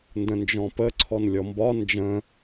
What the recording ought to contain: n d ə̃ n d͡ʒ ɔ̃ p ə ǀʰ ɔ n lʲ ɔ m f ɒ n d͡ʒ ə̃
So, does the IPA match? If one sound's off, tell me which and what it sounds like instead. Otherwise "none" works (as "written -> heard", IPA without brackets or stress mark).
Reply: f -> b